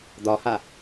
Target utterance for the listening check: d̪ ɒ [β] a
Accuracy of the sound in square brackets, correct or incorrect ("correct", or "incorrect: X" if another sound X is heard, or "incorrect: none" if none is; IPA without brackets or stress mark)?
incorrect: h